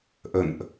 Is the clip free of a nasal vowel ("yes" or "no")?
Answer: yes